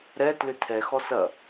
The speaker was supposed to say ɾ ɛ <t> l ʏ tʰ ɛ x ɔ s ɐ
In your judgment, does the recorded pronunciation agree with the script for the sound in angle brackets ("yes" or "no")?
yes